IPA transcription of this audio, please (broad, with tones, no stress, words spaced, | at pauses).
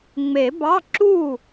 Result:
ŋ͡me˨˩˦bɑ˧˥˧ǁu˥˩